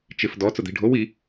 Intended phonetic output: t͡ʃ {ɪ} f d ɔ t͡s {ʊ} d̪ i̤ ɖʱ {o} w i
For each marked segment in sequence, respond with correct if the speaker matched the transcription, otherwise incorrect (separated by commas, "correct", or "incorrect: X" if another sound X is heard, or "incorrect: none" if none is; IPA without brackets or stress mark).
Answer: correct, correct, correct